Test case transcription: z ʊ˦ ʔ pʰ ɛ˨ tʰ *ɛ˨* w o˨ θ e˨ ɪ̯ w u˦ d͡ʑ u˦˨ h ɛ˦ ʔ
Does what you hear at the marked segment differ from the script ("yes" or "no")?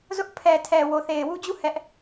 no